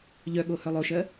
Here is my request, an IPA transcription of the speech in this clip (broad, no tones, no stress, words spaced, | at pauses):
ʎœɠo hœlˠoʃɜ